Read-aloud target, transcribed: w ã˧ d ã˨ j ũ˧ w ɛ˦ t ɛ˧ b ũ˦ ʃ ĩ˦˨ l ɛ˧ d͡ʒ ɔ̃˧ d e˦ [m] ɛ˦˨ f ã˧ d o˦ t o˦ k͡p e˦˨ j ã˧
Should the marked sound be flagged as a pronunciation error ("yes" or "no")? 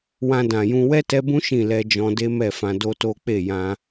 no